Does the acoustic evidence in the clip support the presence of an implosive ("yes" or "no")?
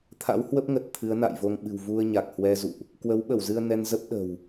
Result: yes